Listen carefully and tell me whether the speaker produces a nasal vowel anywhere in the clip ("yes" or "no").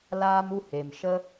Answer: no